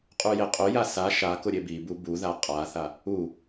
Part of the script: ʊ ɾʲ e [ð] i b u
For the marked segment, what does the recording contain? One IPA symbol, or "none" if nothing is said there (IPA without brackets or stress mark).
b